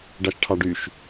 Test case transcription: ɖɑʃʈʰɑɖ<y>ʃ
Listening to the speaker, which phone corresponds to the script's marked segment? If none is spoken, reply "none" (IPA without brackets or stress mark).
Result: y